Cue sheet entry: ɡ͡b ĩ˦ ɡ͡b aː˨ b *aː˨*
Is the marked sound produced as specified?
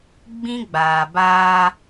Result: no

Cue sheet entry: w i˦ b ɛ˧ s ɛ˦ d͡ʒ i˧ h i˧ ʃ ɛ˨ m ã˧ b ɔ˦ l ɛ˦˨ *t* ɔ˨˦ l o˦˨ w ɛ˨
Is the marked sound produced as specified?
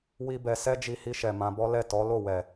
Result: yes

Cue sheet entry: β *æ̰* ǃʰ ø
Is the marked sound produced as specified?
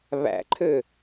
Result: yes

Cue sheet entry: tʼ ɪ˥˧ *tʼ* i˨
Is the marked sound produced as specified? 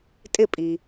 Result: no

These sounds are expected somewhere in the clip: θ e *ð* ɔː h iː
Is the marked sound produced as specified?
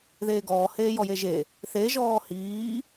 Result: no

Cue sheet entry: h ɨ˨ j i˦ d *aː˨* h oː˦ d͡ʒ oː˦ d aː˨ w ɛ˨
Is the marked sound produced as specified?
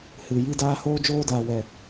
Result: no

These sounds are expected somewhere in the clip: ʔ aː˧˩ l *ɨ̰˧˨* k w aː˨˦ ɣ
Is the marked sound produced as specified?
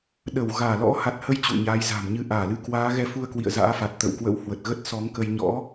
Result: no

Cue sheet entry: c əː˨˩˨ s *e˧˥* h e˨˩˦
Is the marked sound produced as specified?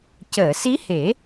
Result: no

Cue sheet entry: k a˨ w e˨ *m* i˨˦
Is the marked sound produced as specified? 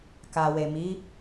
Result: yes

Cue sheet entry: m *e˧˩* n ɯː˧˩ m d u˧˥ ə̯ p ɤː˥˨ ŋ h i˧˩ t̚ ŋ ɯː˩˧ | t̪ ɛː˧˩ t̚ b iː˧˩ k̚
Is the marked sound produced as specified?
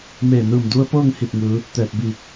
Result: no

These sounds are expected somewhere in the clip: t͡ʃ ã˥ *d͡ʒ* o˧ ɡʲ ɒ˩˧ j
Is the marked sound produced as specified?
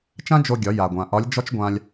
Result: yes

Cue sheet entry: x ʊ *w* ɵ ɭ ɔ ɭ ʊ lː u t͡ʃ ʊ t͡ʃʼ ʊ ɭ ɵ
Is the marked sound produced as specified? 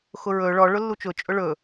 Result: no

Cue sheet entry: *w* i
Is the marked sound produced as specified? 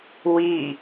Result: yes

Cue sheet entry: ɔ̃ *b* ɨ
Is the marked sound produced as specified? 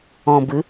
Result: yes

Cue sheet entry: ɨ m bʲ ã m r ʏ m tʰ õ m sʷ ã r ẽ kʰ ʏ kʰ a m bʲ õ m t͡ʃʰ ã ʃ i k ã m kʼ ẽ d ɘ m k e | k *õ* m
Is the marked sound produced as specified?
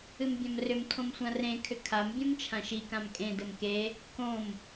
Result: yes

